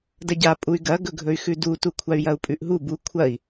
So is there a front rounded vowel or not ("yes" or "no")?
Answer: yes